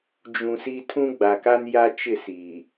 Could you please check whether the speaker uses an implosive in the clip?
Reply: no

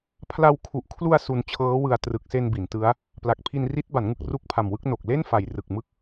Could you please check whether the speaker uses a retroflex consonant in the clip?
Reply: no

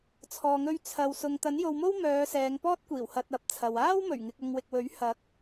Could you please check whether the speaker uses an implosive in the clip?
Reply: no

